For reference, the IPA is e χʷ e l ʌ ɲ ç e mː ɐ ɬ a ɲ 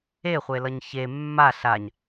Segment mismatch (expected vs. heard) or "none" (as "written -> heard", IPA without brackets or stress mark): ɐ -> a